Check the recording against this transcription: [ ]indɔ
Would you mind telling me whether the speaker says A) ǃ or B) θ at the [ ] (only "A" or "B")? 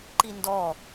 A